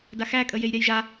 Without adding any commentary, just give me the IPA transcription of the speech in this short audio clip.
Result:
d a x æ kʼ ə j e j ɾʲ a j ʒ a

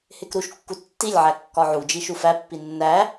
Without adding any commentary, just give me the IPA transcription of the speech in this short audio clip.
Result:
h e k ɾ u ʃ kː u tː i lʲ ʕ æ kː ɒ ʕ u d͡ʒ i ʃ u f æ pː i nː æ

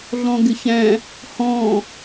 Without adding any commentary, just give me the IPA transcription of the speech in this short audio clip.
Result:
ɮ ɔ̃ ɡ ɪ ç æ̃ | h ɔ̃

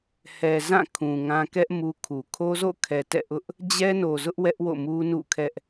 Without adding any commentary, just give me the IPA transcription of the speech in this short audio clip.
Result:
h ɛ˨ z ã˦˨ kʰ ũ˨ ŋ ã˦ k ɛ˦ ʔ m u˦ kʰ u˨ kʰ o˦ z o̰˦˨ kʰ ɛ˨ t ɛ̰˦˨ ʔ ʊ˦ ʔ | d͡ʑ ɛ˦ n o˨ z ʊ˦ ʔ w ɛ˦ ʔ w o̰˦˨ m u˦ n ṵ˦˨ kʰ ɛ˦ ʔ

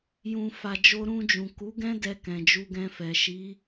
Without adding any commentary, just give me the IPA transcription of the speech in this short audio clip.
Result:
j ũ˨ f a˨ d͡ʒ o˧ ɾ ũ˧ d͡ʒ ũ˨ k u˨˦ ɡ ɛ̃˦ d ɛ˧ k ɛ̃˨ d͡ʒ u˧ ɡ ɛ̃˧ f ɛ˨ ʃ i˨˦

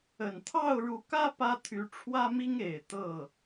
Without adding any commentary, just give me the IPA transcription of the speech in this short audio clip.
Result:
ə˨˩ n t̪ʰ ɑ˥˩ ʊ̯ ɻ u˧˥ k ä˥ p ä˥ t̪ʰ y˧˥ ʈ͡ʂʰ w ä˥ m i˥ ŋ e˨˩ ɪ̯ t̪ ɤ˥˩

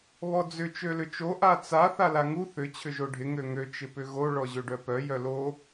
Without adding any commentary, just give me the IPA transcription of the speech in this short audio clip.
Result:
β ɔ d͡z ʏ t͡ʃ ø l ʏ t͡ʃ o ʔ a t͡s a θ a l a ŋ u θ ʏ t͡ɕʰ ʏ ʒ o ɖʱ ɪ ŋ ø ŋ ø t͡ʃ ɪ p ʏ ɣ o ɭ ɔ ʑ ø ɖ œ p œ j œ l o

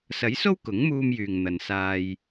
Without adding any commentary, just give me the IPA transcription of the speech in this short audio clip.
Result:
s ɐ˨˥ j s o˥ w k ʊ˨˥ ŋ m uː˧ m j yː˨ ŋ n̪ ɐ˨ n s aː˧ j

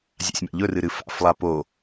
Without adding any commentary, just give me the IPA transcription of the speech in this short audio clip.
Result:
zʲ a̰ sʲ m a̰ ʎ ɵ r ɨ ɾ ɨ f a̰ f lˠ a p o

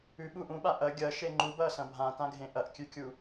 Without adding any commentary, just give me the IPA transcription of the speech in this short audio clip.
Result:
ʉ ɓ uː ʔ ũ ɓ a ʔ ɐ ɡʲ ɐ ʃ e ŋ͡ǃ u b ɐː s ɐ̃ bʱ ã t ã ɡʱ ẽ ʔ ɐ ʔ kʲ ʉ kʲ u

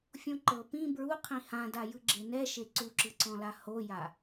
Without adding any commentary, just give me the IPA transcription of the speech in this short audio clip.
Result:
fʲ õ ǃ ɤ p ĩ b ɹ u qʰ ĩ h ã d a j ɯ ɡ͡ǁ e n ɛ ʃ e ǀ u ǁ ɯ ǀ ɔ̃ l a h o j a

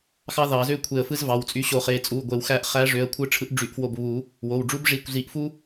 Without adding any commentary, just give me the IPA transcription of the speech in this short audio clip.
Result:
x ɑ˦ ð ɑ˨˩˦ z ø˦ kʷʰ e˧˩ ə̯ f ɯ˦ z v ɑ˩˧˩ w t͡sʼ y˨˥ ɕ o˨˩˦ χ e˩˧˩ t͡sʼ u˩˧˩ ɡʷ e˨˩˦ w x æ˧˩ ʔ χ æ˨˥ ʐ ø˩˧˩ ə̯ kʷʰ ɯ˨˥ ʈ͡ʂʰ ɯ˨˥ ʔ ɖ͡ʐ y˨˩˦ ʔ f w o˧˩ b β u˨˩˦ | w o˩˧˩ w ɖ͡ʐ u˦ b ʐ i˧˩ kʷ z i˨˩˦ ʔ f u˦

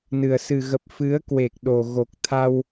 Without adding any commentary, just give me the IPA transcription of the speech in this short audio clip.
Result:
n ɨ˨˩ ə̯ s ɨ˨˩ ɣ ə˨˩ p̚ f ɨ˨˦ ə̯ k w e˨˩ k̚ ɗ o˨˩ ɣ o˨˩ k̚ t̪ʰ a˧ w

